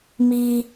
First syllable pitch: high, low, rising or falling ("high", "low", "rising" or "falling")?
high